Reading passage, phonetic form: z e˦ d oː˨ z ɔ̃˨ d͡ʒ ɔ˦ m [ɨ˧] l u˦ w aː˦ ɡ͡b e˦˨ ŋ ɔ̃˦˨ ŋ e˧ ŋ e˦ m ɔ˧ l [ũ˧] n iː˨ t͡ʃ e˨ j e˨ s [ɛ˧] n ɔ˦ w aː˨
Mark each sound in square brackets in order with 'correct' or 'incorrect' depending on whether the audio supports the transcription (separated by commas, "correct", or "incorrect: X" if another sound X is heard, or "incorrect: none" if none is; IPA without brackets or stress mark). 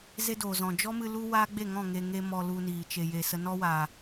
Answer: correct, incorrect: u˧, incorrect: ə˧